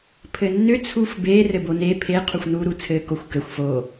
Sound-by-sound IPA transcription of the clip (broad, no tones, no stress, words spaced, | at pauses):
pʰɘnːʏ t͡sʰufbe rɘbone pʰe qʰuxʷnu ɾut͡sʰɘ koxʷkɘxʷ fo